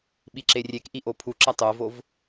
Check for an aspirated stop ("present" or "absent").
present